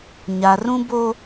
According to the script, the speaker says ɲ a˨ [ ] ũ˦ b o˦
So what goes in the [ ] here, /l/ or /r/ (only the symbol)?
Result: r